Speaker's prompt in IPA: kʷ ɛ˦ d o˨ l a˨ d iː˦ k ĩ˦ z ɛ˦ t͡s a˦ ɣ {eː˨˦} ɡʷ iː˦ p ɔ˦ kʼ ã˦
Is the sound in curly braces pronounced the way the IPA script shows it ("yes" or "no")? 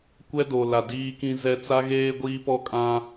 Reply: no